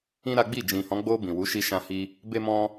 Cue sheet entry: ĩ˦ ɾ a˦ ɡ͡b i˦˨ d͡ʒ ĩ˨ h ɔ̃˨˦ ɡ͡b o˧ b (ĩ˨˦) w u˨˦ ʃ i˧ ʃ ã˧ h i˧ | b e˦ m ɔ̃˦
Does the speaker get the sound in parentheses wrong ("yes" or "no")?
yes